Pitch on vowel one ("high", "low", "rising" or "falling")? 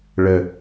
low